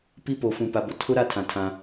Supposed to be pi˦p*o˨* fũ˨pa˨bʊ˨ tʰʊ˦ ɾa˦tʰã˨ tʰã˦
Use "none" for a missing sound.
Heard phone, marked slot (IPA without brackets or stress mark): o˨